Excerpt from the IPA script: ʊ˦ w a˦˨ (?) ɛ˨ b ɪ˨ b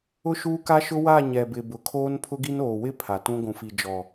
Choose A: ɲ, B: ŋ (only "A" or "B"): A